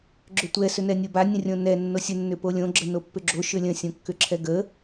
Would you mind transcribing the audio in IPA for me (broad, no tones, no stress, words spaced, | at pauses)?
ɡ͡ǁʏtʷɛ sʏnɛnʲoba nʲə̃rʲõnɛ nːosʲə nːʏpolʲõ ɡ͡ǁənopːʏɡ͡ǁo ʃʏlʲə̃ sʲõkːʏǁʰɛɡə